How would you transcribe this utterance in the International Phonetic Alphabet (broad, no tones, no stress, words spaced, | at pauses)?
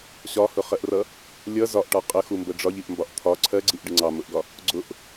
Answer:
ɕɒhʊχɜʔrʌ | lʲʌ zɒʔʈɒ qʼəxumbə ɖ͡ʐɒʎiʔmbɒʔ t̪ʰɒ ǀʰɜɡ͡ǀiʔɖɪ ŋ͡ǀɑmʊʔɡɒ | ɡ͡ǀʊʔ